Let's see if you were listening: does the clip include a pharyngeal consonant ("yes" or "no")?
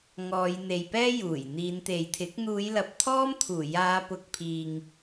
no